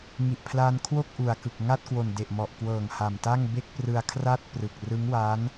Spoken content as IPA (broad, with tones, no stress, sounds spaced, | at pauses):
ŋ i˨˩ ʔ pʰ l aː˧ n kʰ w o˥˩ k̚ ʔ u˨˩ a̯ k ɯ˨˩ k̚ ŋ a˥˩ t̚ k w o˨˩ n d e˨˩ ʔ m ɔ˨˩ ʔ k w ɤː˨˩ ŋ h a˨˩ m t a˥˩ ŋ b e˥˩ k̚ p r ɯ˧ a̯ kʰ r a˥˩ t̚ p r ɯ˨˩ k̚ r ɯ˦˥ ŋ w a˦˥ n